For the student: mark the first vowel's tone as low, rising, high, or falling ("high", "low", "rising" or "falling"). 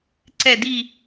falling